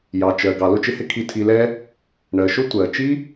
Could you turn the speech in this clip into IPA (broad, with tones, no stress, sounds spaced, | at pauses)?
j ɑ˨ t͡ʃ ɜ˨ ɡ ɑ˨ l ʊ˦ t͡ʃ ɪ˧ h ɪ˦ kʰ i˨ tʰ i˨ l ɛ˧ | ɳ ɜ˨ ʃ ʊ˦ tʷ ɜ˨ t͡ʃ i˦